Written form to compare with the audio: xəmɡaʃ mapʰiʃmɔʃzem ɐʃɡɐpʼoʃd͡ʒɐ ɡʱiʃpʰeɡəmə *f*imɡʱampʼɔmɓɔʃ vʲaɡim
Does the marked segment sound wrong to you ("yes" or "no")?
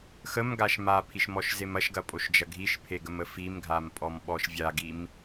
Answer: no